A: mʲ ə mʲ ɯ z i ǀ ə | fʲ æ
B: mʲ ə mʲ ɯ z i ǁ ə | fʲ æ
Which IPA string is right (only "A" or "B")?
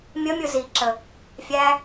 B